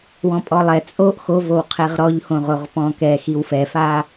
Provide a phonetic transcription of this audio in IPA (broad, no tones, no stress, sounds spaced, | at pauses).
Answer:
w ɔ̃ pʼ ɔ lˠ ɛ t͡sʼ o ʔ x o v o w qʰ e ʁ ɾ ɔ ʎ h õ ʁ o ʁ p ɔ̃ k ɛ x i w f ɛ f a